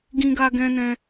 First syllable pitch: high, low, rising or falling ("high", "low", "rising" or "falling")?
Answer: high